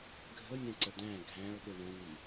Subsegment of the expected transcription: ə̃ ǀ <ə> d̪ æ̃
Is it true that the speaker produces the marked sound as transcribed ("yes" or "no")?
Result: yes